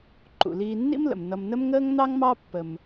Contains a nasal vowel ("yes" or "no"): no